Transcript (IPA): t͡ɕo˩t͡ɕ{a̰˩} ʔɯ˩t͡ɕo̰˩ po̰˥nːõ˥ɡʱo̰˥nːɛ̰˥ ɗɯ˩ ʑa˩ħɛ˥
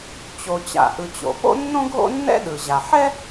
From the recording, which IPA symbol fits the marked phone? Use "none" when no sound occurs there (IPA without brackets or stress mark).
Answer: a̰˩